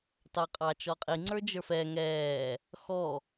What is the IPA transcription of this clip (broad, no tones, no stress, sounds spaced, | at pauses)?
t ɑ qʼ ɑ t͡ʃ ɔ qʼ i ŋ͡ǀ ə˞ d͡ʒ ə˞ f ɛ ŋ ɛː | x ɔ